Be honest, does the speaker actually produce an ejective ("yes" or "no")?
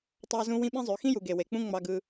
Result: no